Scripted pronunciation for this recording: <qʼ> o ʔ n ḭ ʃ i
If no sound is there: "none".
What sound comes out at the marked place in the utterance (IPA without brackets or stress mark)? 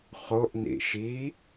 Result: χ